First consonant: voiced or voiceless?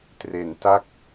voiceless